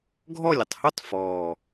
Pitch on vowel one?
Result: falling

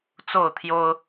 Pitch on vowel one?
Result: falling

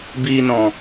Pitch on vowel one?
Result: low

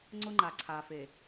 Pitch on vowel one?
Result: high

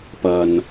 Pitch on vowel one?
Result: low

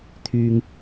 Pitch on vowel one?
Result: low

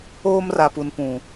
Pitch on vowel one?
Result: high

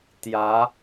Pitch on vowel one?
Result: rising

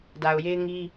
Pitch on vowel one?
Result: low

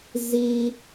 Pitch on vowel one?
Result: low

